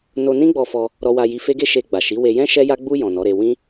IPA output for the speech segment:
n o˧ n ĩ˦ ɡ͡b ɔ˧ f ɔ˧ | ɾ ɔ˧ w a˧ j i˧ f e˦ ɡ e˦ ʃ e˧ ɡ͡b a˨ ʃ i˨˦ w e˧ j ɛ̃˦ ʃ ɛ˧ j a˧ ɡ͡b u˧ j ɔ̃˨ n ɔ˨˦ ɾ e˧ w ĩ˦

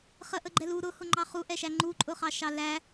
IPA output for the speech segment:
χ ə ʔ ə ɡ͡ǃ ɛ l u ɾ ʊ h ʊ ŋ͡ǃ ɑ χ u ʔ ɛ ʃ æ ŋ͡ǃ u ǃʼ ʊ χ ɑ ʃ ɑ l æ

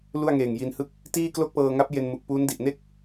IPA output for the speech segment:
l u˥˩ a̯ ŋ eː˨˩ ŋ j i˧ n h ɯ˥˩ k̚ | t iː˥˩ k l o˥˩ k̚ p ɤː˧ ŋ a˦˥ p̚ j e˧ n m u˨˩ k̚ p uː˦˥ n d i˨˩ ʔ n e˥˩ k̚

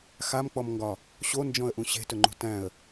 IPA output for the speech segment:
x a m k͡p ɔ m ŋ ɡ ɒ | ɕ o n d͡ʒ ɔ̃ ə̯ ʔ ũ ɕ e̤ t ɵ ŋ͡ǃ ṳ t æ̃ ə̯

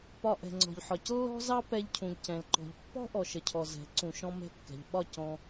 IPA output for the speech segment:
p ɒ˧ ʔ ɛ̤˨ ŋ͡ǀ ɔ̤˨ ʎ ħ ɒ˨ c lː ɔ̤˦ z ɑ˦ p ɛ˧ ʎ cʰ ũ˨ ʎ c ɛ̃˨ l ǃ ɔ̤˨ ʎ pː ɔ̤˦ ʔ ɔ˨ ʃ ə˨ cʰ ɔ˨ z ɛ̤˨˦ ǀ ũ˨ ʃ ɔ̃˦ m ɛ̤˧ kː ɛ̤˨ ʎ ɓ ɒ˦˨ c ɔ̃˧

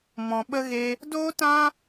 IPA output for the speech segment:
m ɔ̃˧ ɓ ə˦ ɣ e˦ | d oː˦ t ã˦

